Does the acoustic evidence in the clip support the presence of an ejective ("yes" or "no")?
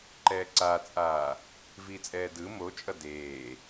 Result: yes